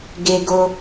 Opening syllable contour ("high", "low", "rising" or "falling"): high